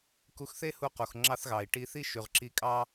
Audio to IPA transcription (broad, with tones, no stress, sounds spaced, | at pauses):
k u˧ x θ e˥ h u˧ q u˩ x ŋ͡ǁ ɑ˥ θ ɣ ɑ˩ i̯ ʈ i˧ θ i˥ ʃ y˩ ʁ ǁ i˧ kʼ ɑ˥